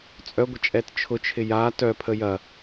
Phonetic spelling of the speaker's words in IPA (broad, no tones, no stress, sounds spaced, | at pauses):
t͡sʼ œ ɡʷ ə t͡ʃʼ ɛ t t͡ʃʰ ʊ t͡ʃʰ ɪ j a t œ pʰ ə j ɐ